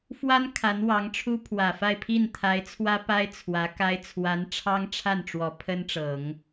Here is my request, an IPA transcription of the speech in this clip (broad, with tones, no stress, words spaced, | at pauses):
fwa˥n kʰa˧˥nwɑ˧˥ŋʈ͡ʂʰu˥ pʰwä˨˩fa˥˧ɪ̯pʰi˥˩n t̪ʰa˧˥ɪ̯t͡sʰwä˥pa˥ɪ̯ t͡sʰwä˧˥ka˥ɪ̯ t͡sʰwa˧˥nʈ͡ʂʰɑ˥ŋʈ͡ʂʰa˥˩n ʈ͡ʂwɔ˧˥pʰə˥nʈ͡ʂɤ˨˩˦ŋ